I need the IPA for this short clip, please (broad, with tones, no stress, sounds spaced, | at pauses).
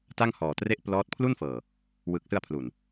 t a˥˩ ŋ h ɔː˨˩ t r e˥˩ ʔ p l ɔː˦˥ t̚ pʰ l u˥˩ n f ɤː˨˩ | w ɯː˨˩ k̚ s ɯ˧ a̯ pʰ l u˨˩ n